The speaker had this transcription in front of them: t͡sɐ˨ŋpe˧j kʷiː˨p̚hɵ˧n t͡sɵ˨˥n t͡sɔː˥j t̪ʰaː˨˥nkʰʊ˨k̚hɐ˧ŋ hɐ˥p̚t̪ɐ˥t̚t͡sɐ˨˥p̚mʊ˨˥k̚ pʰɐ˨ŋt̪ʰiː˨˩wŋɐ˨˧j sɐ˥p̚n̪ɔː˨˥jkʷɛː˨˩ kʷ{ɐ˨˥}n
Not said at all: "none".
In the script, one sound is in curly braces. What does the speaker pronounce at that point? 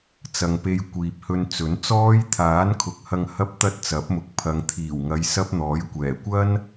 ɐ˥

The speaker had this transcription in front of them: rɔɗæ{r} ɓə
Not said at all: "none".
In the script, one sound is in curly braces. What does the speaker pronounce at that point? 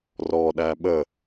none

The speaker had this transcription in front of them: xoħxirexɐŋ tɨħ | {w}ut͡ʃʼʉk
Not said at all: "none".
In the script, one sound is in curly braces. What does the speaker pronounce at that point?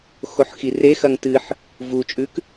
v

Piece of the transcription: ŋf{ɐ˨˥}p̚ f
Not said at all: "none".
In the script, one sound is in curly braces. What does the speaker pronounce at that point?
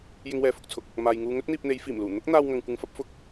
ɐ˥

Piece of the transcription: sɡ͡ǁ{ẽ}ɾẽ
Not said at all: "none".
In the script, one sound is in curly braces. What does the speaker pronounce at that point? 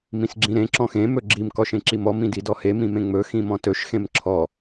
ĩ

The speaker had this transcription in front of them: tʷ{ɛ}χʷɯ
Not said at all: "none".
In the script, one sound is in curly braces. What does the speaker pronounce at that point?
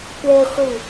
ɛ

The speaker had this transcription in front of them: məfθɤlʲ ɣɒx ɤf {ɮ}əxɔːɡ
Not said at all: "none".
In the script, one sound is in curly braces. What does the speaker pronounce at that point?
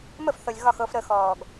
ɾ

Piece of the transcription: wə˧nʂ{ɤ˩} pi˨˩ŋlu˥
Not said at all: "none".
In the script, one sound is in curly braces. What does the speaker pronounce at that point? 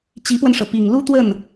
ɤ˩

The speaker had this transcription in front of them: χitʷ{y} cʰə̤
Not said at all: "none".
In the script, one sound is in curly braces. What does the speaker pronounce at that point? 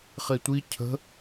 i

